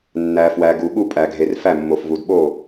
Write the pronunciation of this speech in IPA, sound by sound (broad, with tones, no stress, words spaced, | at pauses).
nːæ˨fwæ˨ ɡu˨ɠu˥˩pʼæ˨ɡʱe˨r fæ˥˩mːo˨fvu˨dɓo˥˩